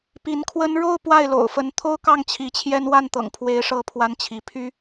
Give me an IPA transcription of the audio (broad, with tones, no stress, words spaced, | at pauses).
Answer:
pi˧˥nkʰwə˥n ɻo˥˧ʊ̯ pwa˥˩ɪ̯lo̰˨˩ʊ̯fə˧˥n t̪ʰo˥ʊ̯kɑ˥˩ŋ t͡ɕʰi˧˥t͡ɕʰjɛ˥n wa˥˩nt̪ɤ̰˨˩ŋpʰwe˧˥ɪ̯ ʂɤ˥˩pʰwa˥nt͡ɕʰi˧˥ pʰy˥